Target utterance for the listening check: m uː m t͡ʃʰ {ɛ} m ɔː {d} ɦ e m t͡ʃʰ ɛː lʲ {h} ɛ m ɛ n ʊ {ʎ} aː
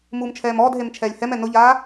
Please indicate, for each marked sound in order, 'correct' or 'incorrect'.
incorrect: ɛː, correct, correct, correct

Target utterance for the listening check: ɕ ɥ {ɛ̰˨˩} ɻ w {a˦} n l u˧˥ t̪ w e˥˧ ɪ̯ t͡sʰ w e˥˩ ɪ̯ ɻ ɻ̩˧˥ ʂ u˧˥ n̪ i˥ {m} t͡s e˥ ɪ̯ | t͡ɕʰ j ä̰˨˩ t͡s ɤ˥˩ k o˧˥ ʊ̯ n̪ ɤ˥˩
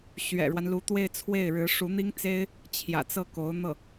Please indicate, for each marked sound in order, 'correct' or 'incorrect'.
correct, correct, incorrect: ŋ

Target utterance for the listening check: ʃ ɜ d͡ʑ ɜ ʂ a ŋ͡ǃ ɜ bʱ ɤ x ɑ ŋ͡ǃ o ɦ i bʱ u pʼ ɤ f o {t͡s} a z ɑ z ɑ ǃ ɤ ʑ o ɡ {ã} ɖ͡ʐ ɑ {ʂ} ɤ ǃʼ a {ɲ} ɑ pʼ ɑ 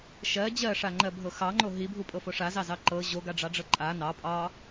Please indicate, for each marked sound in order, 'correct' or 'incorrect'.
incorrect: ʂ, incorrect: a, incorrect: ɖ͡ʐ, incorrect: n

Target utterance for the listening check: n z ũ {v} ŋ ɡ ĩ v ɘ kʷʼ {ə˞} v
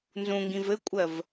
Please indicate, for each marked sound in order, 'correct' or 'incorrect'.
incorrect: none, incorrect: ɜ

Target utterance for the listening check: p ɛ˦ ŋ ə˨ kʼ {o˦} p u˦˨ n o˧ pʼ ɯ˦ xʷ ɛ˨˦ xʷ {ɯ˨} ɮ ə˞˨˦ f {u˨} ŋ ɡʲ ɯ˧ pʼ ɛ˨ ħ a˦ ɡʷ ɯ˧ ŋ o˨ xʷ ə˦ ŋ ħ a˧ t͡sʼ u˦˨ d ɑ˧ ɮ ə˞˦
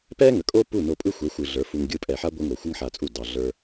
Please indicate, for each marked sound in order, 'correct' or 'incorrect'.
correct, incorrect: ɯ˧, incorrect: u˧

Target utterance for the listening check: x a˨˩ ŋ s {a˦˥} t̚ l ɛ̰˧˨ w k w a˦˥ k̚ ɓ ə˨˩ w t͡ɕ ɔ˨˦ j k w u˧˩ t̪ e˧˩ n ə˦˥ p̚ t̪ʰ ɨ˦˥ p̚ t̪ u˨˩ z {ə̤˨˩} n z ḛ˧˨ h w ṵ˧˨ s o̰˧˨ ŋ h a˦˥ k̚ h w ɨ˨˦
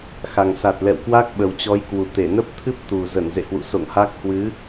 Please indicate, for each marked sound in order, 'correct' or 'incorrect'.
incorrect: a˨˩, incorrect: ə˧˩

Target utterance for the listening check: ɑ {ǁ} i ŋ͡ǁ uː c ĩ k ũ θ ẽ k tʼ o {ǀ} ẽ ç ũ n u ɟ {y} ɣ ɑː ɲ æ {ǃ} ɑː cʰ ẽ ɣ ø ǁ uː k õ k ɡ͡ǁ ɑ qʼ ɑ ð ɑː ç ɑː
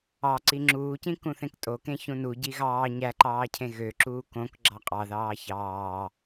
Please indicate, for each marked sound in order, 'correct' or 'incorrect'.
incorrect: ǀ, incorrect: k, incorrect: i, correct

